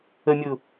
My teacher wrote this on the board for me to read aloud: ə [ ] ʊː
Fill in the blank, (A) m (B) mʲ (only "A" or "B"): B